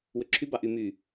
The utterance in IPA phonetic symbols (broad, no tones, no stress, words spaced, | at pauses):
wøǁʰy bɑʔy my